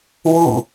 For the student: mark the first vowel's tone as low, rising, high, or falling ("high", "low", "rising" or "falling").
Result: falling